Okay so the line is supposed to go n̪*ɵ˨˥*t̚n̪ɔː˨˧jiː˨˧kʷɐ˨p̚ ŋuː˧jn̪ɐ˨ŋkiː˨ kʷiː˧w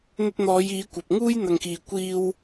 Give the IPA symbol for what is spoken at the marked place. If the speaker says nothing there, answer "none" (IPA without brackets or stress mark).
ɵ˧